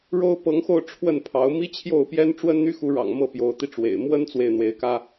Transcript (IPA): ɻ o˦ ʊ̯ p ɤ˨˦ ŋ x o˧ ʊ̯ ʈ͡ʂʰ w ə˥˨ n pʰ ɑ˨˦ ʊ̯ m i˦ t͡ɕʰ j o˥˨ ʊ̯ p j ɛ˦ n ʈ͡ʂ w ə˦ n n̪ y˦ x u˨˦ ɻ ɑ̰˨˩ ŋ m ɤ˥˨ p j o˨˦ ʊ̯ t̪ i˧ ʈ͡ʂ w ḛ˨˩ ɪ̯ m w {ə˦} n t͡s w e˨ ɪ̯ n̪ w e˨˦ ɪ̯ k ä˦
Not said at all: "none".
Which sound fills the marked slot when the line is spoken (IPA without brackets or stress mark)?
ə˦